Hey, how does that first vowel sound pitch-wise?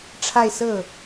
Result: falling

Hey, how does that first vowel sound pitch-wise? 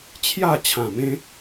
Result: falling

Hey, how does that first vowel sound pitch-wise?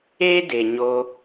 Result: high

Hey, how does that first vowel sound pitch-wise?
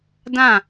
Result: falling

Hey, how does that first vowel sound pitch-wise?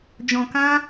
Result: low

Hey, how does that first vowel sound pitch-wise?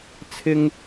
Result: low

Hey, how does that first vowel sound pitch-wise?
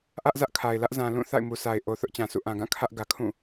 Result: high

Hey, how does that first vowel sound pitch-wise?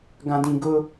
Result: low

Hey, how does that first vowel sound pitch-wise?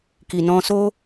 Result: low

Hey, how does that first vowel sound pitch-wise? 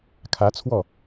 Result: rising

